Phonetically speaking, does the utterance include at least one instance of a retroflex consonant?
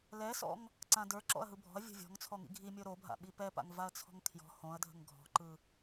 no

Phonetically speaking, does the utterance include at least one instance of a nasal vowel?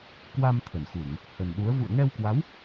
no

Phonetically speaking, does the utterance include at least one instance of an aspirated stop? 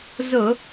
no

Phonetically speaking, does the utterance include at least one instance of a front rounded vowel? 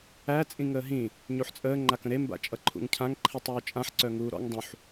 yes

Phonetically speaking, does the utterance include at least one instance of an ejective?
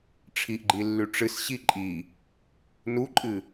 yes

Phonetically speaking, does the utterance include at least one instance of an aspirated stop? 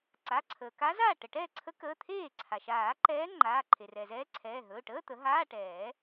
yes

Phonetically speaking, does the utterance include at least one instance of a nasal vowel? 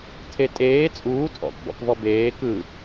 no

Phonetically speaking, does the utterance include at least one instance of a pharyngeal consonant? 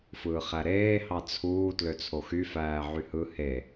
yes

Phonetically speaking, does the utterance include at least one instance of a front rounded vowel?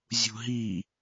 no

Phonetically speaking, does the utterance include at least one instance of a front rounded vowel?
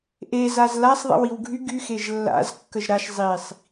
yes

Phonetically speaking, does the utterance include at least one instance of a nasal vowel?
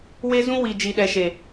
yes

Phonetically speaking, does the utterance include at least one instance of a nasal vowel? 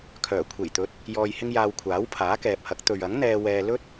no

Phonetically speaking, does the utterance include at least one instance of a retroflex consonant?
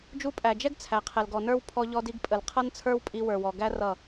no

